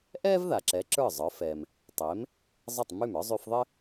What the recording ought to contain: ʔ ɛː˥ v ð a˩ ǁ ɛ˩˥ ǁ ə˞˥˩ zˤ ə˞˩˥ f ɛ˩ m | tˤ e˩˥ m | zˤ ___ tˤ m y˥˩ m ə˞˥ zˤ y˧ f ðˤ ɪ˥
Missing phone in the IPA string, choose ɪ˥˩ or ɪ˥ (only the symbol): ɪ˥˩